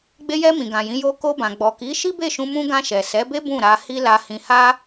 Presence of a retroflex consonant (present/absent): absent